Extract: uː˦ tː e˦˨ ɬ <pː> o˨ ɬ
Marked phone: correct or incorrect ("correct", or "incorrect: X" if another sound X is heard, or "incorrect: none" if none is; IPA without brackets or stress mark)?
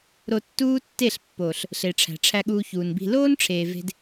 correct